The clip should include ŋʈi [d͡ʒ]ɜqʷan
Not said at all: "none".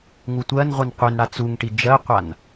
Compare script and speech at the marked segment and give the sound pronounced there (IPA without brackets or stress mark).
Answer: d͡ʒ